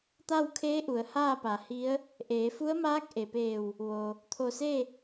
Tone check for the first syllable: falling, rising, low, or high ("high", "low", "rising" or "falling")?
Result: falling